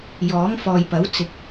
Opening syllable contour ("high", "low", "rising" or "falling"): rising